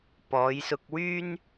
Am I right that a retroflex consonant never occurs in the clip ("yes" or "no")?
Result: yes